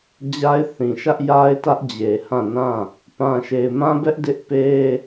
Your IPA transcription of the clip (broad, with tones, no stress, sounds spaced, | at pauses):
d͡ʑ a˦ ɪ̯ θ ĩ˨ ʃ ä˦ ʔ j a˦ ɪ̯ t ä˦ ʔ d͡ʑ e˨ h ã˦˨ n ã˦˨ | p ã˨ ʃ e˨ ɪ̯ m ã˦ b ɛ˦ ʔ d ɪ˦ ʔ p e˦